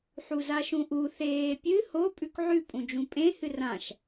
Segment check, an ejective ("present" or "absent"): present